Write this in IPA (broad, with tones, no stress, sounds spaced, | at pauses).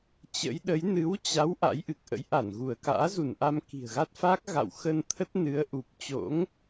t͡ɕ ə̰˧˥ j ɗ ə˨˦ j n ɨ˨˦ w t͡ɕ a˨˦ w ʔ a̰˧˥ j ʔ ɨ˨˩ k̚ ʔ ə̰˧˥ j ʔ a˧˩ n ɣ u˧˩ ə̯ k a̰ː˧˥ z u˧˩ n ʔ a˧ m k i̤˨˩ ə̯ ɣ a˦˥ t̚ f a˦˥ k̚ ɣ a̰˧˨ w x ə˧ n t̪ʰ ə˦˥ t̚ n ɨ˨˦ ə̯ ʔ u˨˩ p̚ t͡ɕ o̰˧˥ ŋ